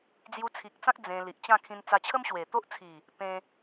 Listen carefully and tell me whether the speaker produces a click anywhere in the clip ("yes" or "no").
no